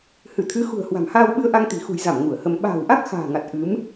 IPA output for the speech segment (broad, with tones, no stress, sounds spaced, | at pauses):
h ɨ˧˩ t̪ʰ ɨ˨˦ x ṳ˨˩ ə̯ h w a̤˨˩ m h aː˧ w ɓ ɨ˧ ə̯ ʔ a˧ ŋ t̪ i̤˨˩ x ṳ˨˩ j z a˧˩ m ŋ u˧˩ ə̯ h ə˧ m ɓ a̤ː˨˩ w ʔ a˦˥ k̚ x a̤ː˨˩ ŋ a˨˩ t̚ ʔ ɨ˨˦ m